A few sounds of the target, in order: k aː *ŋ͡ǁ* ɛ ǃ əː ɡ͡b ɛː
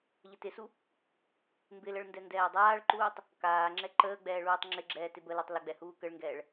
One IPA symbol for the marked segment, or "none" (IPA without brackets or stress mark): ŋ͡ǁ